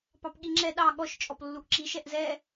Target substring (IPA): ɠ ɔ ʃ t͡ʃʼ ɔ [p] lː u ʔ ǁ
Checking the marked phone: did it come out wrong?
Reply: no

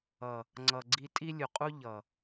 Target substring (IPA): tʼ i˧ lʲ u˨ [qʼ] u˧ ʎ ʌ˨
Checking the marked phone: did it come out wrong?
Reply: no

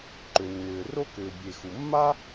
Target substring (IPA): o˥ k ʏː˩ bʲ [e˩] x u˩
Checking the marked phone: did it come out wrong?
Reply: no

